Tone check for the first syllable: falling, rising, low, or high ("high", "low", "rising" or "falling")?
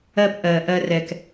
low